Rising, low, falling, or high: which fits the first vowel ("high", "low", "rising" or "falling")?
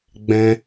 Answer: high